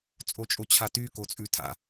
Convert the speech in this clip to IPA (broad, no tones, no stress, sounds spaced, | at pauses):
t͡sʼ o t͡ʃʼ o t͡ɕʰ a t y k o t͡sʼ ʉ tʰ a̰